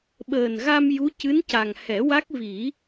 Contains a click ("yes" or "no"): no